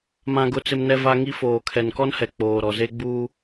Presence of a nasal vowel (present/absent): present